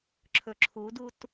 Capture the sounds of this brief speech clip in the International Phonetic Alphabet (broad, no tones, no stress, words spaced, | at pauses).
ǁʰɵǁʰudut